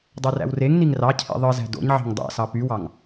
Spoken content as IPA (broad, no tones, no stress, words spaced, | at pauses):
dˤøræ̰wreŋniŋ rɑcʰḭ ðˤɯzæ̤ do̰ɲʕɑ̤ŋ dˤæ̰sɑ pywɑŋ